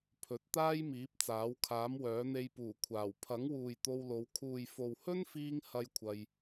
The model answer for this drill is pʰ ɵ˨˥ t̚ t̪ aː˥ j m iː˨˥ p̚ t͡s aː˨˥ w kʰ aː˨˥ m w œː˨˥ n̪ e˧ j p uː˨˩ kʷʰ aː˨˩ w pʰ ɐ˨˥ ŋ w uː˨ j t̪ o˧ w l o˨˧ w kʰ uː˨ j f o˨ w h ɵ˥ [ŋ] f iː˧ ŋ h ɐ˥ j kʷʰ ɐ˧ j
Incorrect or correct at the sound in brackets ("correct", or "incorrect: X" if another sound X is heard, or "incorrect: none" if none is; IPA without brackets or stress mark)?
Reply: incorrect: n